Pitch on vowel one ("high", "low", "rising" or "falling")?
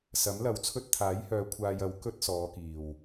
rising